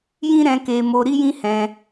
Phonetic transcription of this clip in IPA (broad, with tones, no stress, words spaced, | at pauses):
jĩ˦ɾɛ̃˧ke˧mo˧ ɾi˦jĩ˦hɛ̃˧